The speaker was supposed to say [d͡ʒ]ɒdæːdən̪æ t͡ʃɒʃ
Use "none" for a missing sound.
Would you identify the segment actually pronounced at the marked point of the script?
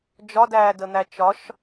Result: d͡ʒ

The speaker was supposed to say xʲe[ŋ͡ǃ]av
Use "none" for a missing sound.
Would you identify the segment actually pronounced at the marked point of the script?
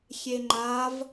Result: ŋ͡ǃ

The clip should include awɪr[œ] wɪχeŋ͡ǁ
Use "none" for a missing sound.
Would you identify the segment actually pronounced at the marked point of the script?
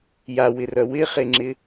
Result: œ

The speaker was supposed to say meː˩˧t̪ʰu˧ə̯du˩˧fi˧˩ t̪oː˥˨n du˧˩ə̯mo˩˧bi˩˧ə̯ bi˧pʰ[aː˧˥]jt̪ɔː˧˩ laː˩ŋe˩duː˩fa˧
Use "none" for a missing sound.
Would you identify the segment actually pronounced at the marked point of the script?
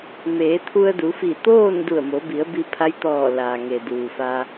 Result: a˧˥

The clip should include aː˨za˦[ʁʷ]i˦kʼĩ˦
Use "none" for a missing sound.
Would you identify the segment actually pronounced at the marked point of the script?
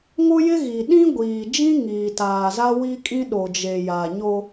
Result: w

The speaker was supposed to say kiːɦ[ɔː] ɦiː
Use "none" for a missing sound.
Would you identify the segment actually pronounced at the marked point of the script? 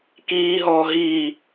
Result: ɔː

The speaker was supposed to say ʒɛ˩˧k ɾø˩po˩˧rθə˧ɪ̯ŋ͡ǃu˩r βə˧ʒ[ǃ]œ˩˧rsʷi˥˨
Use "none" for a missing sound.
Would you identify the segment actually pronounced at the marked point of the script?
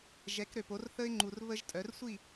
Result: tʼ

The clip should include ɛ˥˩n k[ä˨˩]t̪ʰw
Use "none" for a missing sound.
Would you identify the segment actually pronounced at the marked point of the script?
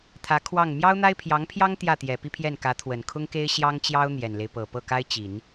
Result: ä˧˥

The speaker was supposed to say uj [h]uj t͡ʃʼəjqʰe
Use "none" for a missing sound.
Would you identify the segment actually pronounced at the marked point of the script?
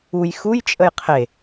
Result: x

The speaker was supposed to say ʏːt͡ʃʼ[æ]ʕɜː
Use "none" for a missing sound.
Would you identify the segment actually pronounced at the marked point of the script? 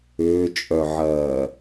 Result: œ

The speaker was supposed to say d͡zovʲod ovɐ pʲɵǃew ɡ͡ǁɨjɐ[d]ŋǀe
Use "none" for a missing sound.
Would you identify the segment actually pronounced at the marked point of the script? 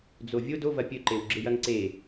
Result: none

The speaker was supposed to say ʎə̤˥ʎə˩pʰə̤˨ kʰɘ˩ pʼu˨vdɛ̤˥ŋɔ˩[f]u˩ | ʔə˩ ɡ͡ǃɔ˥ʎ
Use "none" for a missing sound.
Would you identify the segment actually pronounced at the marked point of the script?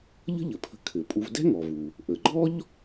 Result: v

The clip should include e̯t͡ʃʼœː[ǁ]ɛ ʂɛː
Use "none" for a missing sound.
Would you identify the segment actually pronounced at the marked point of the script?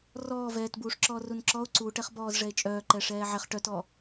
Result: ǃ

